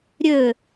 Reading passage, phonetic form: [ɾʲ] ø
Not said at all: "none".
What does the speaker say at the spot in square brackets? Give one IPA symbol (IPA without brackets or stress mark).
ɾʲ